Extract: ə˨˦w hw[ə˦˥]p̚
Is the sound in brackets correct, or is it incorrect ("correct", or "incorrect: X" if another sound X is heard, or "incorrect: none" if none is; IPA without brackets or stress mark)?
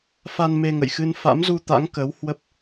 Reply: correct